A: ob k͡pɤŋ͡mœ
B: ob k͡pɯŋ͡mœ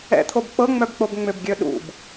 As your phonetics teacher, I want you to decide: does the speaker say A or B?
A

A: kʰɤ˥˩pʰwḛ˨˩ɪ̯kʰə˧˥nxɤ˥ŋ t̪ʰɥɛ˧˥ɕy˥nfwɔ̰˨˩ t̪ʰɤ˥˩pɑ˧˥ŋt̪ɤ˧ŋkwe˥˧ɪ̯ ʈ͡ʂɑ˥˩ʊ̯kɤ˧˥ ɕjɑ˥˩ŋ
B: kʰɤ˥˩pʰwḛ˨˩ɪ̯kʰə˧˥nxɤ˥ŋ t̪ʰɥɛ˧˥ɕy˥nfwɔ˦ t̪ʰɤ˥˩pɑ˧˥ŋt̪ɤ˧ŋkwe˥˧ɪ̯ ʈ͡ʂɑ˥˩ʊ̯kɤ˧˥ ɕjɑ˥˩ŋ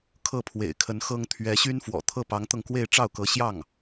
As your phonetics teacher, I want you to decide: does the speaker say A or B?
A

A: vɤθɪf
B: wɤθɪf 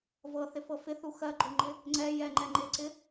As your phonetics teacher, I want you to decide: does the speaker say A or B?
A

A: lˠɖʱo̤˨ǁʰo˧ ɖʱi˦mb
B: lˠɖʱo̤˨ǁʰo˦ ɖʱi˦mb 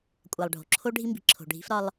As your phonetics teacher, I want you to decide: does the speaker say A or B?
B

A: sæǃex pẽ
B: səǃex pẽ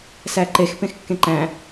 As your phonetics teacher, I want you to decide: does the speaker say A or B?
A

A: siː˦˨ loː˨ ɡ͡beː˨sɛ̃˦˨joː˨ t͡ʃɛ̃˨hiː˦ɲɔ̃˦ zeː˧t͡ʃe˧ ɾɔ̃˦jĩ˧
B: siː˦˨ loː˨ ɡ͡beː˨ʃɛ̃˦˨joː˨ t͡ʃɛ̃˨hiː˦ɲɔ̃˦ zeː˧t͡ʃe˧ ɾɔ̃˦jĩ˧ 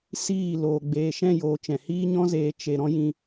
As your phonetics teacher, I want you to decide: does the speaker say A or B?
B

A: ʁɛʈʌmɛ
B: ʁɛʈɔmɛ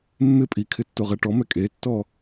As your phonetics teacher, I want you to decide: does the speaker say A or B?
B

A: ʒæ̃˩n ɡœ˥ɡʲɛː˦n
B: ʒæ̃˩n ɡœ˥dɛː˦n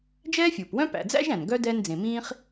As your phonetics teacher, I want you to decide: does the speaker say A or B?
B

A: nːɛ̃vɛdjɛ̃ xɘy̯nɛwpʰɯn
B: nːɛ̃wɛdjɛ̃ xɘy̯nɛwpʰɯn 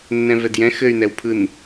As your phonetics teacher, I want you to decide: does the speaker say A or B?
A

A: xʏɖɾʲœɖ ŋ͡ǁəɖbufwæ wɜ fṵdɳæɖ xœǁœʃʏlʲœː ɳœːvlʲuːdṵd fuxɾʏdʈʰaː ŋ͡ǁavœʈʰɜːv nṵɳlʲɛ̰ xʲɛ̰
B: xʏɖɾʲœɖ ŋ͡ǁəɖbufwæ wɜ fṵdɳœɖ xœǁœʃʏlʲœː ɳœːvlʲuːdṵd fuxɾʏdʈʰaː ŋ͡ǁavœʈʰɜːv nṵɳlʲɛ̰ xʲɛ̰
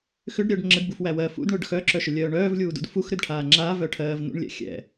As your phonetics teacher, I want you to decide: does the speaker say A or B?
B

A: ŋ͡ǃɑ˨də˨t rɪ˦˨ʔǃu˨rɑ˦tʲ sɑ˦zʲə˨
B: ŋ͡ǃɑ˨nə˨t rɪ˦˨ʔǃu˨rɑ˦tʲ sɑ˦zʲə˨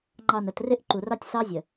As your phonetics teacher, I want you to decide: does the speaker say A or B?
B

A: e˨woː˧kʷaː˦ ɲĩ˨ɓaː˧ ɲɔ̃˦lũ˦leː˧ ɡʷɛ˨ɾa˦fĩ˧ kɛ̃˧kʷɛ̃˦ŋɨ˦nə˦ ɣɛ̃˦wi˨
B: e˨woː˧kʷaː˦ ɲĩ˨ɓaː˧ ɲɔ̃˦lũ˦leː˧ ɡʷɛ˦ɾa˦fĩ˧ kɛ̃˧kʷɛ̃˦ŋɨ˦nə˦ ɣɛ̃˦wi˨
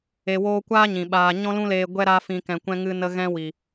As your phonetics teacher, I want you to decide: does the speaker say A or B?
B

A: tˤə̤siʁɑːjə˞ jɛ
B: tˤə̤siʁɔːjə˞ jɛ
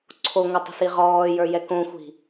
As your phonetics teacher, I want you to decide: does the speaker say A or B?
B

